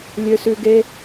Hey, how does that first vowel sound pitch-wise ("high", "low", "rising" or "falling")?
low